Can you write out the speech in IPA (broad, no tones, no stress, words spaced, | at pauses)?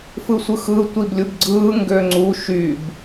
fɯsʷɯxɯ tʷiblʲubɡ͡ǀɯː ŋɡøŋ͡ǀu ʃyb